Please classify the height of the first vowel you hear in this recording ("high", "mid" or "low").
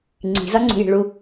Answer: high